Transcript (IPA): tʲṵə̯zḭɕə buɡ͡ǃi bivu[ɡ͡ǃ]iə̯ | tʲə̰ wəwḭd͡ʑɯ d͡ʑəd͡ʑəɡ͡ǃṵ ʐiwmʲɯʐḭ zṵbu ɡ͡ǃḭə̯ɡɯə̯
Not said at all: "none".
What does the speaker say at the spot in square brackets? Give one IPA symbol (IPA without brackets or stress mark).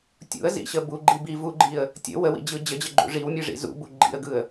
ɡ͡ǃ